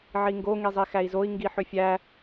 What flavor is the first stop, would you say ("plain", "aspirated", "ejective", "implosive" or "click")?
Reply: plain